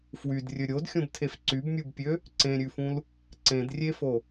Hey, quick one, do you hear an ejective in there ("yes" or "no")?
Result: no